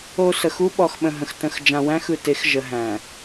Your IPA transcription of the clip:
o˨ s ə˨ x u˦ ɓ ɔ˨ x ɓ ə̃˨ ɦ ə̃˨ x t ə̃˨ x d͡ʒ ã˨ w æ̃˦ x ɯ˨ t e˨˦ x ʒ ə˨ ɦ æ̃˨

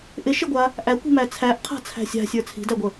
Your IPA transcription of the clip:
ʔ ɪ ʃ ɪ ɡʷ a | ʔ æ kʷ i̤ m æ t͡sʰ æ ʔ qʰ a̤ t͡sʰ æ̤ sʲ a̤ sʲ ə˞ t͡sʰ i̤ d æ ɡʷ ə

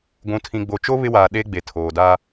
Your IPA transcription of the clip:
ɡʷ ũ˨ tʰ ĩ˨ ɡ͡b o˨ t͡ʃ o˦ β ɪ˦ w aː˨ ɗ e˦ ɡ͡b e˨ tʰ oː˨ d a˦

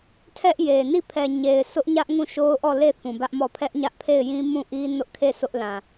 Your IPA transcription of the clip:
tʰ ɛ˦ ʔ j e˨ n i˦˨ pʰ ɛ˨ ɲ e˨ ɪ̯ sʰ ʊ˦ ʔ ɲ ä˦ ʔ ŋ ũ˦˨ ʃ o˦ ʊ̯ ʔ ɔ˦˨ l e˦˨ θ ũ˨ b ä˦ ʔ m ɔ˦˨ pʰ ɛ˦ ʔ ɲ ä˦ ʔ pʰ e˦˨ ɪ̯ j ĩ˦ m ũ˦˨ ʔ i˦ n ʊ˦ ʔ kʰ e˦˨ sʰ ʊ˦ ʔ l ã˨

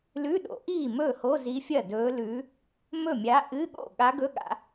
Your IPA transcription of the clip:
l ʉ˧˥˧ ɗ o̰˨˩˦ ʔ iː˥˩ m ɵː˥˩ h o˧˥˧ z i˧˥ fʲ ɐ˥˩ d ɵː˧˥ l ʉː˧˥ | m ɵ˥˩ mʲ a˧˥ ʔ ɨ˧˥˧ ɠ o̰˥˩ ɠ a˧˥ ɡ ɵ˧˥˧ ɠ a̰˨˩˦

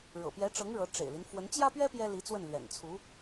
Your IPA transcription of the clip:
ɻ ɤ̰˨˩ p j ɛ˧˥ ʈ͡ʂ ɤ˧˥ ŋ ɻ ɤ˧˥ ʈ͡ʂ ḛ˨˩ ɪ̯ l i˦ n f w ə˧˥ n t͡ɕ j ä˥ p ɥ ɛ˥ p j ɛ˥ l i˧˥ t͡s w ə˥˩ n l ɥ ɛ̰˨˩ n t͡sʰ u˧˥

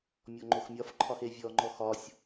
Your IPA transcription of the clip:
mʲ ɔ ŋ͡ǃ o x mʲ ɒ f ǃʰ ɒ x e vʲ ɔ ŋ͡ǃ ɔ x ɒ sʲ

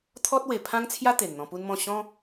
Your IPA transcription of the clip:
t̪ʰ ɔ˦ t̚ w e˨˩ pʰ ã˦ ŋ t͡sʰ j a˦ t̪ e˨˩ n n̪ ɔ̃˧ p u˦ n m ɔ̃˥˧ ɕ ɔ̃˦

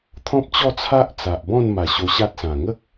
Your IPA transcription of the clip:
t̪ʰ ɔ̃˦ p̚ t͡ɕ ɔ˥˧ t͡sʰ a˦ ʔ t͡s a˨ ʔ b ɔ̃˥˧ n m a˨˩ ɕ o˧ ɕ a˦ t̚ s ã˨˩ ŋ ə˦ k̚

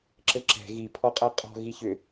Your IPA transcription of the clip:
ǁ ɘ ǁ ɛ̤ ɣ i pʰ ɔ qʼ æ qʼ ɔ̤ ɣ i ç ʏ

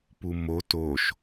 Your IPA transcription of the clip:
p u m o t o ʃ

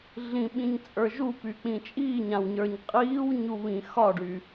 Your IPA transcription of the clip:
ɮ ĩ ɓ ĩ ɲ t͡sʼ ə˞ ʒ u p y k͡p ĩ t͡ʃʼ iː ɲ ã w ɲ ə˞ ɲ qʼ iː w ɲ u β ĩ x ɒ ɖ y

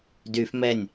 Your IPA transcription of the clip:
d y f m ɛ nʲ

